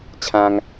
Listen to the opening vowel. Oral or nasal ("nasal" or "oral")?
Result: nasal